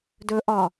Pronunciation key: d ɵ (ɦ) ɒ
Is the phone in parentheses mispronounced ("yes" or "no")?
yes